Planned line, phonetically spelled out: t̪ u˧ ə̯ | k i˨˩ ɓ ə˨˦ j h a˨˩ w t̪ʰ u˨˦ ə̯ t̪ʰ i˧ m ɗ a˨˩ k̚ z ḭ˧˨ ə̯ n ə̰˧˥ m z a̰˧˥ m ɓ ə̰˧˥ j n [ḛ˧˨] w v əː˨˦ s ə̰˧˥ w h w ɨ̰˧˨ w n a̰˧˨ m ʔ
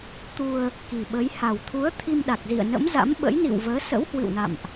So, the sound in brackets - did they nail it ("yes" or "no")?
no